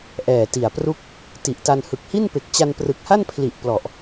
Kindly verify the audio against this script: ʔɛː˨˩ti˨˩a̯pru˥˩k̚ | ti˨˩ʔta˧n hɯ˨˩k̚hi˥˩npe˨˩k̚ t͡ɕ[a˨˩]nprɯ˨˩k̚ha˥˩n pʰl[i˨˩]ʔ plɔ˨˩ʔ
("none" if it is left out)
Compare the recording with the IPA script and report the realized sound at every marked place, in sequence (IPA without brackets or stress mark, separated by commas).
a˧, i˨˩